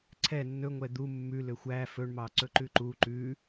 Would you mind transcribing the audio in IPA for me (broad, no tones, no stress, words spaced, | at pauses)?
ǀʰɛ nːɵŋʷɛ d̪u mːʉ løxʷæ fɵɳmɑǀɵ ǃʉǃu ǃʉ